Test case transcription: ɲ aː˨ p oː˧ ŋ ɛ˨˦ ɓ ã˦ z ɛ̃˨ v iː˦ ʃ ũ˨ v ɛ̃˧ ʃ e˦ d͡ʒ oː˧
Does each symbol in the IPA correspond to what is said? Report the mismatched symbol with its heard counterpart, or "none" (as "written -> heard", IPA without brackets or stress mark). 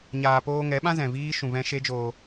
none